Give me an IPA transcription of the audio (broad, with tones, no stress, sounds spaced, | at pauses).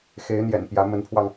x e˧˥ ɪ̯ n̪ j ɛ̰˨˩ n p j ä˧˥ m ə˧˥ n pʰ w ɑ˧ ŋ